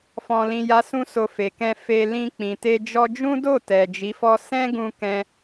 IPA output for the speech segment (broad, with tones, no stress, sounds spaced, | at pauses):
f ɔ̃˧ l ĩ˧ j a˦ s ũ˦ s o˧ f e˨ k ɛ̃˧ f e˧ l ĩ˧ k͡p ĩ˨ t e˧ d͡ʒ ɔ˧ d͡ʒ ũ˦ d o˦˨ t ɛ˨ d͡ʒ i˨˦ f ɔ˦ s ɛ̃˦ ɡ ũ˧ k ɛ̃˧